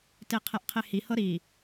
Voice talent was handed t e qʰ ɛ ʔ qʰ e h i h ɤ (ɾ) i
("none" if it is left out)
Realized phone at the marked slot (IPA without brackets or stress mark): ɾ